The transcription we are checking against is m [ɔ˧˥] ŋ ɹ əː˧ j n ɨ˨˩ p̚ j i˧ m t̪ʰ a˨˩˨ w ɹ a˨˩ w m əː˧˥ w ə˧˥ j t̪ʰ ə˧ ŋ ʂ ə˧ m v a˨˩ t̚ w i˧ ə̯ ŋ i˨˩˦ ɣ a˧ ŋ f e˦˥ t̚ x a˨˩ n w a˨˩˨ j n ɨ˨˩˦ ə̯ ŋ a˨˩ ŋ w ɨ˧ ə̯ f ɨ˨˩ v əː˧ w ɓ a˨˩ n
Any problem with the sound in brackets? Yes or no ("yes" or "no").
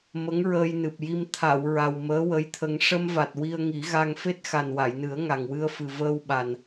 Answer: yes